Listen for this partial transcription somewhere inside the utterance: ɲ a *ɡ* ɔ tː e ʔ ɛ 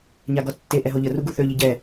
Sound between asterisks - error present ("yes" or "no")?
no